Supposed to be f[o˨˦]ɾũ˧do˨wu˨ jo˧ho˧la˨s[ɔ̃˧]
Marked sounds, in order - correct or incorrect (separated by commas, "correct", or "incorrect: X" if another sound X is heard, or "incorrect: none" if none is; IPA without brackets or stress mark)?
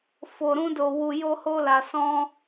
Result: incorrect: o˨, correct